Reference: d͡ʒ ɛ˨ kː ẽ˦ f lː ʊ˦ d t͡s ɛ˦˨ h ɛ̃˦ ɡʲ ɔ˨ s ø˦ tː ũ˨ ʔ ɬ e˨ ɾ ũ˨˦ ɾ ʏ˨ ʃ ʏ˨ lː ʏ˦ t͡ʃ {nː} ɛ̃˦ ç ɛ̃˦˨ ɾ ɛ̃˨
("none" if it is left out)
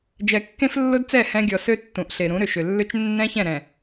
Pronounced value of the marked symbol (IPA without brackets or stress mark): nː